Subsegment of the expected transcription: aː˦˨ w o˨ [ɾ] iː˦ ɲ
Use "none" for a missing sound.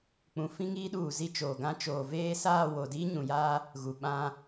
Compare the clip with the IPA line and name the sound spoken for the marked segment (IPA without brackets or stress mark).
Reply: d